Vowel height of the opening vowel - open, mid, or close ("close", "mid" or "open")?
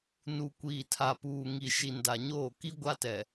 close